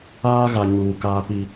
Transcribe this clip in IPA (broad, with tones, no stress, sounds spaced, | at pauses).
aː˦ ɣ a˨ ɲ uː˨ k aː˦ p i˦